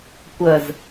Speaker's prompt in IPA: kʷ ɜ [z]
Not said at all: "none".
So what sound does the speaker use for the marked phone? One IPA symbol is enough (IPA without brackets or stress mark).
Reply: z